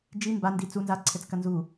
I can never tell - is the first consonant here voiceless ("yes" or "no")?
no